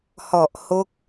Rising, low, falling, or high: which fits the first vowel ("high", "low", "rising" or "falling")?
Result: low